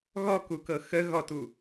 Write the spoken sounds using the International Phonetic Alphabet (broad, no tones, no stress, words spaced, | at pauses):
ɣɔkukɤ xə ɣɔtu